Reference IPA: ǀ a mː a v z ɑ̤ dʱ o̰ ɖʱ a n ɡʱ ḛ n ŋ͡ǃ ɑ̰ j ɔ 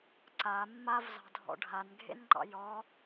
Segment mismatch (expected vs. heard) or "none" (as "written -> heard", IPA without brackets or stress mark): o̰ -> ɔ̰